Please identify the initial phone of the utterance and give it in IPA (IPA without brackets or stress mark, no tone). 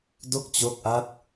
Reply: d